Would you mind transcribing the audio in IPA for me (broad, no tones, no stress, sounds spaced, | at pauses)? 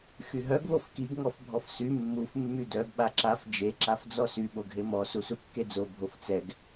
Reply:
x y ɦ œ ɡ β o f k i ɡ ŋ ɔ f bʱ ɔ f s y mː u f mː y d œ ɡ ɓ a ǁ a f d͡ʒ e ǁ a f d͡z ɔ s y ɓ o ɡʱ e m ɔ s u s u kː e d͡z o bʱ o f t͡s ɛ ɡ